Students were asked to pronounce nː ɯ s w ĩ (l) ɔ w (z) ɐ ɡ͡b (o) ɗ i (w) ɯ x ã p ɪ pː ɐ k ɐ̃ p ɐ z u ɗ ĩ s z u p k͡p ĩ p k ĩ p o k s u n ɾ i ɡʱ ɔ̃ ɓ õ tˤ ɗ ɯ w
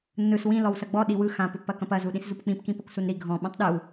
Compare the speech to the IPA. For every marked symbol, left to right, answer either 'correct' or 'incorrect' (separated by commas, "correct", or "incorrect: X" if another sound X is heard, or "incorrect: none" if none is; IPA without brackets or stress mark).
correct, incorrect: s, incorrect: ɔ, correct